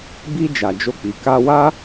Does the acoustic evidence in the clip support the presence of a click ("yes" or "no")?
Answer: no